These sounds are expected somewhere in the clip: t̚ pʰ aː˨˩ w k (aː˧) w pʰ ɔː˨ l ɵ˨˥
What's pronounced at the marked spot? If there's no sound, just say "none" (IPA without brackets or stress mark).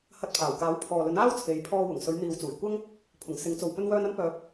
aː˨˥